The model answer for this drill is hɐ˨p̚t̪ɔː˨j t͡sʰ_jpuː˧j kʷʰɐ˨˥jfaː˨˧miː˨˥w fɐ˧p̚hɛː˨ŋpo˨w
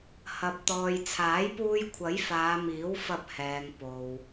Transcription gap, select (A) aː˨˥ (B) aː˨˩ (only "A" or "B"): A